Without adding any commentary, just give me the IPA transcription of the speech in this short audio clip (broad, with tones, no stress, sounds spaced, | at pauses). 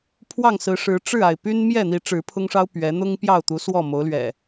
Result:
pʰ w ɑ˥˨ ŋ s ɹ̩˨˦ ʂ ɻ̩˨˦ ʈ͡ʂ ɻ̩˥˨ a˩ ɪ̯ p y˦ n m j ɛ˥˨ n̪ i˨˦ ʈ͡ʂ ɻ̩˨˦ pʰ ʊ˦ ŋ ʂ ɑ˦ ʊ̯ p ɥ ɛ˨˦ n̪ ʊ˦ ŋ p j ɑ˥˨ ʊ̯ t̪ u˨˦ s w ɔ˥˨ m o˨˦ ʊ̯ l ɥ ɛ̰˨˩